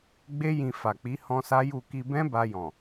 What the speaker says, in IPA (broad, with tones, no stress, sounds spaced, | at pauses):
ɡ͡b e˦ j ĩ˧ f a˨ k͡p i˨˦ h ɔ̃˦ s a˦ j u˦˨ k i˧ b ɛ̃˦ b a˧ j ɔ̃˨